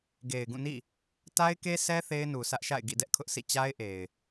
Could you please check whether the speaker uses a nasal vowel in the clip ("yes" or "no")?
yes